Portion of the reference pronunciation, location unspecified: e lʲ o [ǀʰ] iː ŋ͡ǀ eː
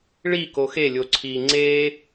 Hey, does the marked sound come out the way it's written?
yes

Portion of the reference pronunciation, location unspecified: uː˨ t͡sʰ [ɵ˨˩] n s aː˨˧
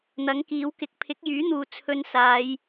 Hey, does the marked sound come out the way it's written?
no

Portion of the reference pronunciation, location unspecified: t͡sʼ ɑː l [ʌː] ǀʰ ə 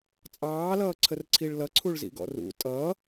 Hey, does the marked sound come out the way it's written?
yes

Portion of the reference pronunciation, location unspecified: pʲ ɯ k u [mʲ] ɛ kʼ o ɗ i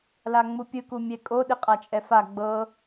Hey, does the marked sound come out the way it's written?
yes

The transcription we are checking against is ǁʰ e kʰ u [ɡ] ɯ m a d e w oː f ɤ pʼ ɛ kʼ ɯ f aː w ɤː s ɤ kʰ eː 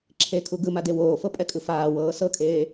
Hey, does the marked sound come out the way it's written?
yes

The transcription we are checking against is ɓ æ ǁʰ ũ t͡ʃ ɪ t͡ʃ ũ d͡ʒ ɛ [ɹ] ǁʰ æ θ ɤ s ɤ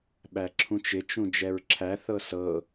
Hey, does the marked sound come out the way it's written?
yes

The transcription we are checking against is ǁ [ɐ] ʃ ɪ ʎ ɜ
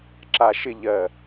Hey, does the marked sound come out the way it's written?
no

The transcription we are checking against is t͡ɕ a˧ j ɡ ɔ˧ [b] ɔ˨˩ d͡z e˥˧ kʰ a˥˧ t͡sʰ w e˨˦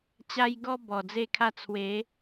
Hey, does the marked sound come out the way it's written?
yes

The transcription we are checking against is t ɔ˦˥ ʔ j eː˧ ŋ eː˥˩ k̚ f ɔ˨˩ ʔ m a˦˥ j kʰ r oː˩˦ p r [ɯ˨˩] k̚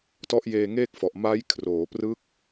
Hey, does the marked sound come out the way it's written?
no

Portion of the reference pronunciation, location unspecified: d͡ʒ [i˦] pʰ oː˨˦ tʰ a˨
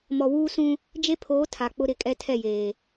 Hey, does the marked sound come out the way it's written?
no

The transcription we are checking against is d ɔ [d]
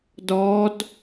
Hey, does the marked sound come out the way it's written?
yes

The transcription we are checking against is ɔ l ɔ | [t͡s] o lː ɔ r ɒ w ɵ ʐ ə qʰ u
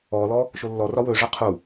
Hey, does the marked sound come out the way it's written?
no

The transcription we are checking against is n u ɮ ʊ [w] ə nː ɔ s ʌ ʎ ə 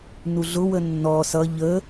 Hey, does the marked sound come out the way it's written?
yes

